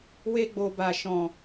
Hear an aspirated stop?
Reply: no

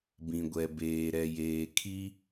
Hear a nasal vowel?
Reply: yes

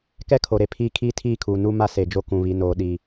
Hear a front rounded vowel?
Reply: no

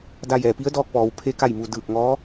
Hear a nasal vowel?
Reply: no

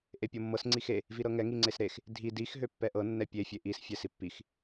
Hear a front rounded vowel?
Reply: yes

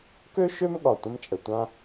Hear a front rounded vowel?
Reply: yes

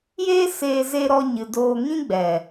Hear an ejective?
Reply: no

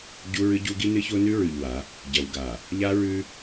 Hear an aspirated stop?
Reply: no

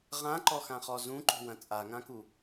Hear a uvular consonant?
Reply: yes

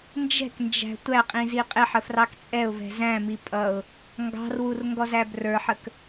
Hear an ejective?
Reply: yes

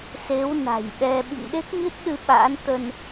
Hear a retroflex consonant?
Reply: no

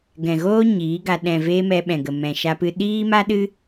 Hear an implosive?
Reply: yes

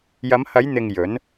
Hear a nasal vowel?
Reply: no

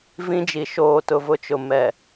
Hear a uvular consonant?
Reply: no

